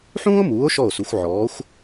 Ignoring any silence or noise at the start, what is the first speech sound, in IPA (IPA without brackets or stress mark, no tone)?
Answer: ħ